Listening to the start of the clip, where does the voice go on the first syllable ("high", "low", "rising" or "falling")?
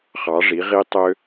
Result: rising